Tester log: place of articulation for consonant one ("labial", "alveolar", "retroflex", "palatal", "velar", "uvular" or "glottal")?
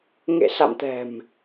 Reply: velar